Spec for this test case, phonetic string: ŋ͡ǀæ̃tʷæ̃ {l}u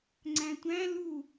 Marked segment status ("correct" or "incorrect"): correct